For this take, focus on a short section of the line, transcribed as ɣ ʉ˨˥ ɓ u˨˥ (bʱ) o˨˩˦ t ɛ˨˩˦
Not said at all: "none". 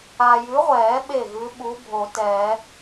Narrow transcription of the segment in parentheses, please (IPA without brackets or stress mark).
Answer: bʱ